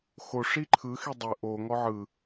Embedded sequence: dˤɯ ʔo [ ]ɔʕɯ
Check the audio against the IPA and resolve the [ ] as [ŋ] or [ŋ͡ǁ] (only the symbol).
ŋ